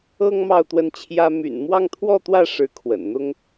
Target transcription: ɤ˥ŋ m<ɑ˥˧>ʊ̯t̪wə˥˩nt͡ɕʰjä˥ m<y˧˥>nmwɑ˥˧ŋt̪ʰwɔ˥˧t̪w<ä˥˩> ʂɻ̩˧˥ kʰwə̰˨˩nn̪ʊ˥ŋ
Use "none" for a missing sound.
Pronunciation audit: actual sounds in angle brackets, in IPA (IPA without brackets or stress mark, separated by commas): ɑ˥˧, y̰˨˩, ä˥˩